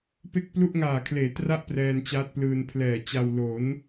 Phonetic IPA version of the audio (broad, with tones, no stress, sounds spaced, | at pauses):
p e˥˩ k̚ p l u˥˩ ʔ ŋ aː˨˩ kʰ l eː˩˦ t r a˥˩ ʔ p r ɛː˧ n t͡ɕ aː˦˥ t̚ p l ɯː˧ n pʰ l ɛː˨˩ t͡ɕ a˧ w l o˩˦ n